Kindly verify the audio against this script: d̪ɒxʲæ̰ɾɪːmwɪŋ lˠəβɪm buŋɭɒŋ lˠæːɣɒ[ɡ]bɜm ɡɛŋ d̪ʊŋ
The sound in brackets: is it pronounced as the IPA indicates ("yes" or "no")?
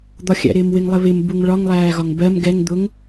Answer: no